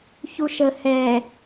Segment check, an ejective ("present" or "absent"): absent